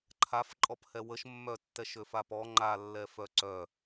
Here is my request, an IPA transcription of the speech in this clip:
ǃʰ a f ǃʼ ɔ p h ɛ w ə ʃ mː œ tː ɛ ʃ ø f a p ɔ ŋ͡ǃ a lː ɛ f œ ǀ œ

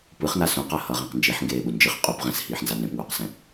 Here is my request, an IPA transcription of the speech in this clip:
p ɯ χ n a s ũ q a h ʌ ʁ ẽ q n d͡ʒ i ħ ŋ ɡ eː ɓ u n d͡ʒ ɯ χ qʼ u p ʁ ɛ̃ s h iː ħ n z a n ẽ p ŋ uː q s ɛ̃

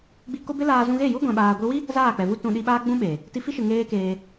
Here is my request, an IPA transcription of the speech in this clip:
ɡ͡b i˧ k o˦ b e˦ l aː˧ z ũ˧ ɣ e˦˨ j u˦ ɡʷ ɛ̃˧ ɓ aː˧ ɡʷ i˧ w i˦ | z aː˦˨ k͡p ɛ˨ v u˦ t ũ˧ ɗ i˧ ɓ aː˦ ɡ͡b ũ˦ ɓ eː˨ | t i˧ f i˦ ʃ ɨ˨ ŋ eː˦ k eː˧

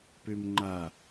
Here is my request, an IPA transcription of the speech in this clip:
p ø m ŋ͡ǃ a

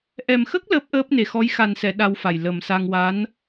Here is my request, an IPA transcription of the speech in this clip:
ʔ ɛ˨˩ m x ə˦˥ k̚ l əː˦˥ p̚ ʔ əː˦˥ p̚ n e˨˩ x ɔ˧˥ j x a˨˩ n s ɛ˨˩˨ ɗ a˧ w f a˨˩ j l ə˨˩ m s a˧ ŋ w a˧˥ n

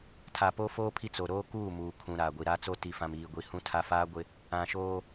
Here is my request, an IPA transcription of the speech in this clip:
tʰ a˨ p o˦ f oː˦ pʰ i˦ t͡s o˨ ɾ oː˦ k uː˦˨ m uː˨ kʰ ũ˨ ɾ aː˨ ɡʷ i˨ ɾ a˦ t͡s o˦ t i˨ f ã˨ m iː˨ ɡʷ i˨ h ũ˦ tʰ a˦ f aː˦ ɡʷ ɪ˦ | ã˨ ʃ oː˦

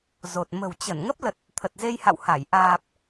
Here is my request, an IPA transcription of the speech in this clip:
z o˨˩ t̚ m ə̤˨˩ w t͡ɕ ə˧˩ n ŋ ə˦˥ p̚ l ə˨˩ t̚ | t̪ʰ ə˨˩ t̚ z e˧ j h a̰˧˨ w h a˧˩ j ʔ aː˨˩ p̚

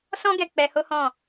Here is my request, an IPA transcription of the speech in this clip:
s ɔ̃˦ ɡ ɛ˧ k͡p ɛ˧ h o˦ h ɔ̃˦˨

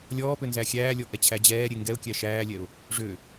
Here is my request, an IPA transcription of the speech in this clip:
lʲ ɔː p ø n z æ xʲ æː lʲ ɔ ʔ ɛ t͡ɕʰ æ d͡ʑ ɛː ɾʲ e ŋ ɡ ɛ ʊ̯ kʲ æ ʃ æː lʲ ɛ ʊ̯ | ʐ ø

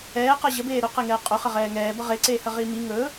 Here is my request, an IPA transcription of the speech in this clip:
ɛː q ʌ ʑ ə b eː ɾ ɵ q e ŋ ɛː qʼ ɵ χ ə ʁ ɛː ŋ ɛː b ʌ ʁ e ǀ eː h ə ʁ iː m i ŋ ɵ

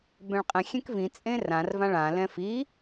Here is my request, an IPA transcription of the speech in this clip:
b ɛ̃ ɭ qʼ ɛ̃ xʲ ɛ̃ k v ĩ t͡sʼ ẽ r ã r v ã ɭ ã l ɛ̃ f i

